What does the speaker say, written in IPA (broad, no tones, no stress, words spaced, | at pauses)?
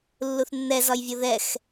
lːuθnːɛzɒjvʲo ðɛx